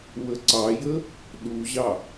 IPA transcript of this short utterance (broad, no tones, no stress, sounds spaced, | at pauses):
w ə ǀ ɑ j ə | ɗ u ʑ ɑ